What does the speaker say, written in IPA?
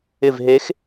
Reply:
ɪ˦˨ v ɦ e˧˥ x

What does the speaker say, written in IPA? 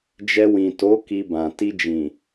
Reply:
d͡ʒ ɛ˧ w ĩ˨ t o˨˦ k i˧ b ã˨ t i˧ d͡ʒ ĩ˨

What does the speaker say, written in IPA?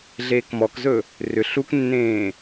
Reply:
ɮ eː k m ɔ k z ɵ | r ʏ ɬ u k nː ẽː

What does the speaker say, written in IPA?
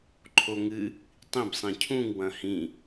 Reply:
ǃʰ o ŋ ɨ | tˤ ĩ b sˤ ĩ cʰ ũ ŋ w ɐ̃ h ĩ

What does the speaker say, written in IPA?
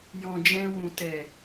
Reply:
j ɔ̃˨ d͡ʒ ɛ̃˧ w ũ˨ t ɛ˨

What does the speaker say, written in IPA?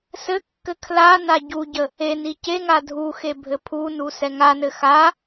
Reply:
s ɘ kː ɘ kʰ l a n a ɟ u ɟ ə | e n i c e ŋ a dʱ u x e bʱ ɘ pʰ u n u s ɛ ŋ a n ɘ x a

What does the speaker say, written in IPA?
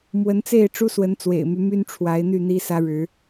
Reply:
m w ə˨˦ n t͡s e˥˨ ɪ̯ ʈ͡ʂ u˦ s w ə˨˦ n t͡s w ḛ˨˩ ɪ̯ m y˦ m y˦ n ʈ͡ʂʰ w a˨˦ ɪ̯ n̪ y˥˨ n̪ i˦ s ä˦ ɻ ɻ̩˨˦

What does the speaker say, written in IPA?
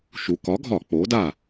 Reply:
ʃ u˩˧ k ɒ˩˥ ɡʱ ɒ˧˩˧ k͡p oː˩˥ d aː˥˩

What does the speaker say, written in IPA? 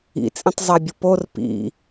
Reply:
ḭ t͡sʼ ĩ tˤ zˤ æ bʲ o p o r p ḭ

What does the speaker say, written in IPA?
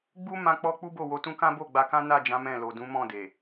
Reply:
ɡ͡b u˦ m ã˧ k͡p ɔ˧ k͡p u˦ b o˦˨ w o˧ t ũ˦ k ã˦ b o˦˨ ɡ͡b a˧ k ã˦ n a˦˨ d͡ʒ ã˨˦ m ɛ̃˦˨ l o˨ d ũ˨˦ m ɔ̃˦˨ d e˨

